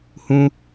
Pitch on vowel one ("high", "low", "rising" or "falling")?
high